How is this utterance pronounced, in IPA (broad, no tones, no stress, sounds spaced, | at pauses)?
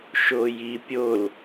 ʃ o j i pʲ o l